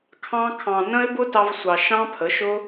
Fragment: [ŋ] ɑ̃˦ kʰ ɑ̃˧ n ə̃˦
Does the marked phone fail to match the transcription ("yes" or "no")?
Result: yes